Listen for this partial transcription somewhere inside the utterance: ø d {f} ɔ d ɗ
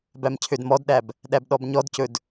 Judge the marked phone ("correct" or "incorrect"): incorrect